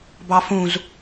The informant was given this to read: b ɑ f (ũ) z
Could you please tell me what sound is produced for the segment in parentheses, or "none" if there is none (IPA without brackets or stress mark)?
ũ